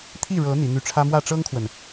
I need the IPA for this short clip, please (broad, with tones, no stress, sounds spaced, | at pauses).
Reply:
t̪ʰ i˥˩ ɻ ɤ˧˥ n̪ i˧˥ n̪ y˥˩ ʈ͡ʂʰ ä˥ m w ä˥˩ ʈ͡ʂ ɤ˥ ŋ kʰ w ə˨ n